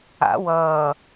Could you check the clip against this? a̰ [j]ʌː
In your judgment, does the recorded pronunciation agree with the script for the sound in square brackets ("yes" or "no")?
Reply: no